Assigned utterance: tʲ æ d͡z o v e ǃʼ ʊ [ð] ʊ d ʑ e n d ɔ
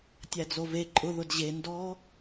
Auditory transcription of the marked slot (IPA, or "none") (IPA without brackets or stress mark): ð